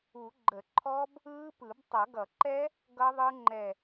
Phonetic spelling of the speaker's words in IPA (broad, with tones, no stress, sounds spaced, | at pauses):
u˨˩˦ ɡ͡ǃ ə˨˩˦ ǃʰ ɔ˦˥ b | ɯː˦˥ p ɯ˨˩˦ b tˤ ʌ˨˩˦ ɡ ʌ˨˩˦ ǃ ɛ˦˥ | ɡ ʌ˦˥ ðˤ ɯ˦˥ ŋ͡ǃ ɛ˧˩